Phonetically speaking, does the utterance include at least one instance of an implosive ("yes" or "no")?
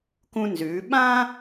yes